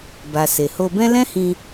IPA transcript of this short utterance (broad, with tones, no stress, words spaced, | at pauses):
ba˨se˨ho˧bɛ̃˦ lɛ̃˦hĩ˧